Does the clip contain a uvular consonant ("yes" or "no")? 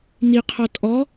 yes